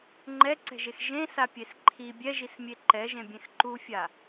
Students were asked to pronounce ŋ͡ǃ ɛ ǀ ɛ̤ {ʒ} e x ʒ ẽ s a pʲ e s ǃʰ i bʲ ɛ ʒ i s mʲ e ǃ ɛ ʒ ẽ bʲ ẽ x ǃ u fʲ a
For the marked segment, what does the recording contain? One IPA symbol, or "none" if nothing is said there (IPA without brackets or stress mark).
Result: ʒ